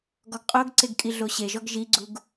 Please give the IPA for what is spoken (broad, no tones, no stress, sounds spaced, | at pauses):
ɡ ɔ ɡ qʼ o ɡ ǀ e ɡ kʼ i ɮ o ɕ e ʒ ɔ ɡ ʒ i ɡ͡ǀ u ɡ